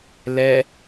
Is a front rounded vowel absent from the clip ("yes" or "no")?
yes